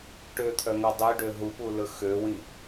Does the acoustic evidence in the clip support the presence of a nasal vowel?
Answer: yes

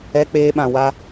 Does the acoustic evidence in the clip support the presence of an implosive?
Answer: yes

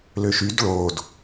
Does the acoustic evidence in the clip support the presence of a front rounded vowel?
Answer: yes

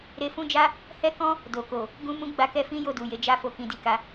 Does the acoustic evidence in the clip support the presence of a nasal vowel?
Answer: yes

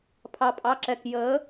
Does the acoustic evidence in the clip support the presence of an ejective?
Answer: yes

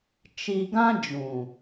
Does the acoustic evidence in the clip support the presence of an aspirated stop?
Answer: no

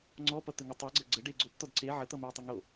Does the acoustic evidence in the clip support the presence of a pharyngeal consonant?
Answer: yes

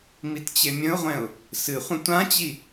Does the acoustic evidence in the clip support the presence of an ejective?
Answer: no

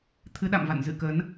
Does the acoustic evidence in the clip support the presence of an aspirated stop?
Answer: yes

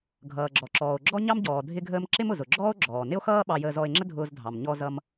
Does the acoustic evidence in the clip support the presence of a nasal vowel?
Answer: no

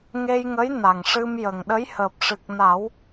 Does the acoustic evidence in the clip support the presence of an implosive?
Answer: yes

